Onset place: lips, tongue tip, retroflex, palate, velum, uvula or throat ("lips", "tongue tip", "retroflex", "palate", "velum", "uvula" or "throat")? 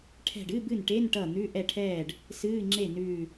retroflex